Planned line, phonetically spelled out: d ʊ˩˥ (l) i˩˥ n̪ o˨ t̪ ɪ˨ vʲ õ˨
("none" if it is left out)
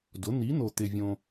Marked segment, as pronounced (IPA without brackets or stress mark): n̪